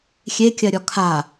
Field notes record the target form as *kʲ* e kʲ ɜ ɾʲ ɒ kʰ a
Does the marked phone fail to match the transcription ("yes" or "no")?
yes